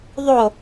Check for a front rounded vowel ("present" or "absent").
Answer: absent